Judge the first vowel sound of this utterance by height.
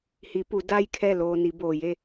high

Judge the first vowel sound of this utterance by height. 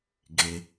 mid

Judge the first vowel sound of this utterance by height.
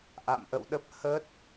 low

